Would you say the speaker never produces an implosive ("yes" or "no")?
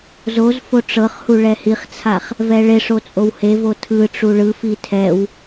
yes